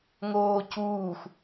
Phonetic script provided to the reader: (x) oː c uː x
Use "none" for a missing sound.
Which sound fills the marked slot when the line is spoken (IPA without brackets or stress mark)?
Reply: ŋ